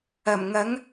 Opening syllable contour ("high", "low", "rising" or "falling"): low